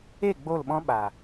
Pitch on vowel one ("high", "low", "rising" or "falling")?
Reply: falling